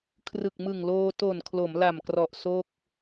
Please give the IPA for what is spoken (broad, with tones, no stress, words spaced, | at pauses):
kʰrɯ˨˩k̚mɯ˨˩ŋloː˧ to˨˩nkʰlo˩˦mla˨˩mkrɔ˨˩ʔ so˥˩k̚